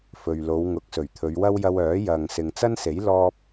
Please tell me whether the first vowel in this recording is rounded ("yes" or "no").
yes